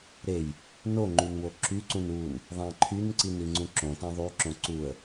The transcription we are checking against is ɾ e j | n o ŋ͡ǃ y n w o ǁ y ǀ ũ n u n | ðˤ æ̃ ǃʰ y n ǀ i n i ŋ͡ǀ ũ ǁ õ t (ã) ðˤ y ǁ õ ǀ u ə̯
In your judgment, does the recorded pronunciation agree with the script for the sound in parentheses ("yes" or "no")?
no